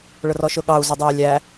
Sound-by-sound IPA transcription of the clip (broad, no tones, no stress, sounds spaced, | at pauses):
ɭ ʊ r ɔ ʃ ʊ ɠ ɑ u̯ z ʊ dˤ ɛ j lʲ æ